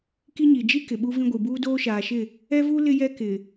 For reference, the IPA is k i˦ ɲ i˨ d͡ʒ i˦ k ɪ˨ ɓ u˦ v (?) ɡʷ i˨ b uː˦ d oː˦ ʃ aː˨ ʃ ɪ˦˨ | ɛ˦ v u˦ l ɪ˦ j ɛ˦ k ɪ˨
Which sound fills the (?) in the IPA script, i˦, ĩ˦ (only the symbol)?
ĩ˦